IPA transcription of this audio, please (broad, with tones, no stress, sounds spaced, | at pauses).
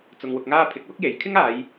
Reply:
t͡s ʊ˧ ŋ w ʊ˧ k̚ ŋ aː˥ pʰ ɪ˨˥ k̚ w ʊ˥ k̚ j e˨ j kʰ ɪ˥ ŋ aː˨˧ j